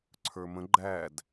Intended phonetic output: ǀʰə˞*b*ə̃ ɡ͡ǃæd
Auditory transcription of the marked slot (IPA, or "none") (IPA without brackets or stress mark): m